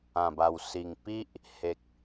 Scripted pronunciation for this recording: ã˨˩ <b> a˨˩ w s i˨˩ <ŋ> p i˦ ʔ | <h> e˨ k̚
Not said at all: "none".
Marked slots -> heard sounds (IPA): b, ŋ, h

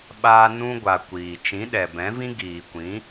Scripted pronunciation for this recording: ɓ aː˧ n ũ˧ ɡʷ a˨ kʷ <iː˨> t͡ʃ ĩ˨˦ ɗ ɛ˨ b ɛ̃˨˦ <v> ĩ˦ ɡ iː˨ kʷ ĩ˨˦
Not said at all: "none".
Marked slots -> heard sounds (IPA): iː˨, v

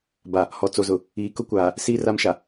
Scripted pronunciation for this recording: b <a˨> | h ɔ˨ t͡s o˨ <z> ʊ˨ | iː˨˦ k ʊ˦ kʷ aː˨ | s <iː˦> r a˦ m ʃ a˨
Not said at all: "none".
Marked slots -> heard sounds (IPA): a˨, z, iː˦

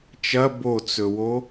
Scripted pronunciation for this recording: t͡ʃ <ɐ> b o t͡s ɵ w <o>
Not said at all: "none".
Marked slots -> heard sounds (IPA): ɐ, o

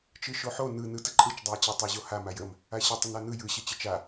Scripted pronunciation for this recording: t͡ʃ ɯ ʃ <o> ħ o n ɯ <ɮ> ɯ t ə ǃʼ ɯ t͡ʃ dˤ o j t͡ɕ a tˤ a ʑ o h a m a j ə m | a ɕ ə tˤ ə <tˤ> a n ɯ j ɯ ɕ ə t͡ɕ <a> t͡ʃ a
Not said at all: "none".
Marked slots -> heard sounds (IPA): o, n, n, ə

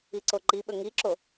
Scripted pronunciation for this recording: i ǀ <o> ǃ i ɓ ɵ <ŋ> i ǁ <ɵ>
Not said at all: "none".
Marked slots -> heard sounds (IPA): o, ŋ, o

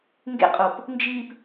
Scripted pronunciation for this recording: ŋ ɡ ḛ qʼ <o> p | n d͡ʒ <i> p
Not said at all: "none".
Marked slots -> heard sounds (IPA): o, i

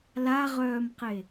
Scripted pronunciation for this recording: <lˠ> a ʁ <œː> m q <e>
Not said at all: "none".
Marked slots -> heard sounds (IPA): l, œː, e

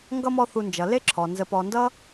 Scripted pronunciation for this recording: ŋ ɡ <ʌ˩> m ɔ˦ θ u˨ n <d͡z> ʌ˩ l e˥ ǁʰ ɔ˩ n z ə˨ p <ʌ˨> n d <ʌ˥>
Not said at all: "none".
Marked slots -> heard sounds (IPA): ʌ˥, d͡ʒ, ɔ˨, ʌ˥

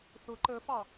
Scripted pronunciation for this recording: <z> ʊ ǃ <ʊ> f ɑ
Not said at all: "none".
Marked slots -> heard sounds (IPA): θ, ə

